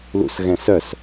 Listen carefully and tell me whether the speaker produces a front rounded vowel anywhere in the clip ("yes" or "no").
yes